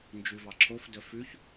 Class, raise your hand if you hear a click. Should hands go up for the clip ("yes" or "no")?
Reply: yes